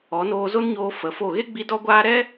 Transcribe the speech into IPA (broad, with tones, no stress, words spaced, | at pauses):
ɔ˨˦noː˧zo˦nɲoː˧ fə˨˦fo˦˨ ɣe˦ɡ͡bi˧ dɔ˦ɡʷaː˦ ɾɛ˦